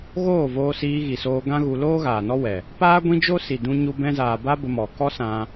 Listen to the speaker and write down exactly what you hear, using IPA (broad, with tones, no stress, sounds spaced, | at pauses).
ɣ oː˦˨ v oː˧ s iː˧ ɣ i˨ s oː˧ ɡ ã˦ ɣ u˧ l oː˦ ɣ aː˨ n ɔ˦ w ɛ˨ | p aː˦ ɡʷ ĩ˦ d͡ʒ o˦ s i˨ d ũ˧ ɲ u˧ b ɛ̃˧ z aː˨ b a˦ b ə˧ m ɔ˨ k ɔ˦ s ã˧